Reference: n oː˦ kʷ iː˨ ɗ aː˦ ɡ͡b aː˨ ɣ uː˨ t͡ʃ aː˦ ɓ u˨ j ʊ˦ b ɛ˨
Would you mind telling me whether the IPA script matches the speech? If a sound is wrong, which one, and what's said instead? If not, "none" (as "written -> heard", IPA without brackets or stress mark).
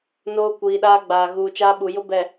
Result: none